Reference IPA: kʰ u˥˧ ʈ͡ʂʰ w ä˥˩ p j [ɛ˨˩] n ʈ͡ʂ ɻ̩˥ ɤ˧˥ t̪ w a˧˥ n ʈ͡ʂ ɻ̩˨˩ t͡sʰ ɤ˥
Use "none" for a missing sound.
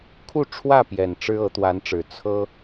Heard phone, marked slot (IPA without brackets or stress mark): ɛ˨˩